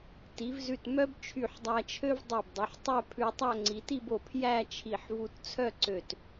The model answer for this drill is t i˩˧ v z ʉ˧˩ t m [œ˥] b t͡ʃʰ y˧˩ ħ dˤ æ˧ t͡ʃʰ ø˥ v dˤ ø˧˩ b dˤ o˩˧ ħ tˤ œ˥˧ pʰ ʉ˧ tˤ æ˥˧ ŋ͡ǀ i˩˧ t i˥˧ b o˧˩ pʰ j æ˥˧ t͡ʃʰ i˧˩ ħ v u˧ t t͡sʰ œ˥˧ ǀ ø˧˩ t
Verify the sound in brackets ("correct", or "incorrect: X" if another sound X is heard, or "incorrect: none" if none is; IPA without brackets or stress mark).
correct